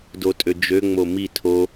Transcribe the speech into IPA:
dotʼød͡ʒø ŋ͡momi tʰo

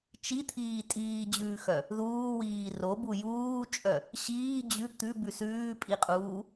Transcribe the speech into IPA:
t͡ʃit̪ʰiː tʼiːd͡ʑʉːxœ | ðuːwiː robu juːt͡ʃʼœ | ɕiː d͡ʑʉ t̪ʉbʉ sʉːpʼiqʼuː

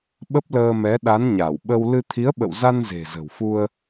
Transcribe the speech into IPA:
ɓə˦˥p̚ləː˧mɛ˨˦ ɗa˨˦nɲa˧˩wɓə˧w lɨ˧ t̪ʰi˨˦ə̯ɓə̰˧˨wza˧n ze̤˨˩zə̤˨˩wfu˧ə̯

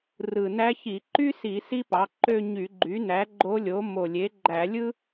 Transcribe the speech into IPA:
rɯ˨˩ næ˧˥çi˧˩˧ ǃy˥si˧˩˧ si˥pɑ˩˥ǃø˥˧ ɲy˧˩˧ɡ͡ǃy˩˥næ˩˥ ɡ͡ǃo˧˥lʲo˩˥ mo˨˩lʲe˩˥ɡ͡ǃæ˧˩˧ lʲɯ˥

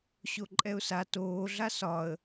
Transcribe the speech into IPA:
ɕoǃʼɛʊ̯sa toːɮa sɒə̯

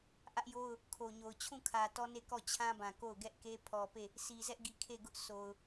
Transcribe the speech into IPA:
ʔä˦ʔjo˦ʊ̯ | kʰo˨ɲo˨ʊ̯ t͡ɕʰũ˦˨kʰä˨ tɔ˦ne˦˨ kɔ˦˨t͡ɕʰã˦bã˨ ko˦˨ʊ̯ɡɛ˦ʔke˦ pʰɔ˨pe˦˨ | sʰi˨zɛ˦ʔɡi˨ kʰe˦˨ɡʊ˦ʔ sʰo˨ʊ̯

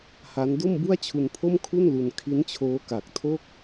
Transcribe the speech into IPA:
ha˦˥n do˥˩mbu˥˩a̯t͡ɕʰu˧npʰo˥˩m kʰu˥˩nlu˧n kʰi˦˥nt͡ɕʰoː˦˥ka˨˩k̚tʰo˥˩k̚

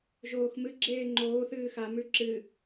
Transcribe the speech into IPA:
ʒoːxmɨ ɡ͡ǁeːŋ͡ǃoː θɨːxa mʉǁɨ

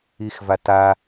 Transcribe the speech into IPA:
ixvata

